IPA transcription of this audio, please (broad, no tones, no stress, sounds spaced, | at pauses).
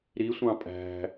ɾ i sʷ ɑ̃ pʼ æ̤